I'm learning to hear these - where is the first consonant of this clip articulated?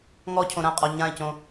velum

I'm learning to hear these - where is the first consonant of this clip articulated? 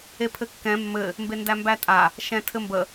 lips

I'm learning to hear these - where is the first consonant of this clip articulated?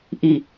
throat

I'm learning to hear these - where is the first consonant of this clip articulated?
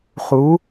uvula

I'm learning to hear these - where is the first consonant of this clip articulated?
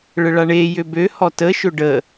retroflex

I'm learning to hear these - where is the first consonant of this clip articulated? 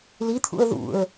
tongue tip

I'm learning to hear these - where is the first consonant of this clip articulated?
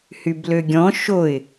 throat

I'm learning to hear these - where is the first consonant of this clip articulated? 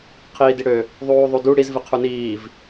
uvula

